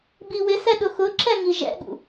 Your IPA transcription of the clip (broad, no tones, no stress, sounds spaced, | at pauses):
b i w ɪ s ɛ ɗ ʊ x ʊ ǁ ɛ ŋ i ʒ ɛ̰ ɠ ṵ